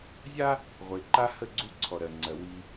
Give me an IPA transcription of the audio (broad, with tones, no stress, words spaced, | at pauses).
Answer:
zʲa˦ | ʁʷe˨ ǃa˦hə˦˨ɡ͡ǀu˦ ǀʰɔ˨ɾɜ˨ŋ͡ǀɜ˨ wi˦